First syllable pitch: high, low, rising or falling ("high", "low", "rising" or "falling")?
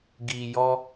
low